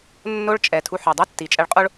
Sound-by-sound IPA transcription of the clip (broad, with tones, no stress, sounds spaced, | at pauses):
nː o˥ ɭ t͡ʃʼ ɛ˩ tʰ u˧ ħ œ˩ dˤ u˥ tː i˩ t͡ʃʼ ɛ˧ ɭ qʼ o˥ ɭ